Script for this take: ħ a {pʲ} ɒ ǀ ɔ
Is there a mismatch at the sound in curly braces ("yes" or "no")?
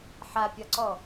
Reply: no